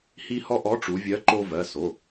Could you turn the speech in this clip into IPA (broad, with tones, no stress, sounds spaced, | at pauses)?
h i˧ h ɔ˧ ʔ ɔ˨˥ ʈ͡ʂ u˩˧ vʲ ɜ˨˥ ǃ o˧ v ɜ˩˧˩ s o˩˧˩